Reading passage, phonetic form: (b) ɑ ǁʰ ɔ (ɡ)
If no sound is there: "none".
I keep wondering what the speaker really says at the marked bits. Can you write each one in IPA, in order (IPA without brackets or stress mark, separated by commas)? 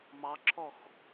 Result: m, x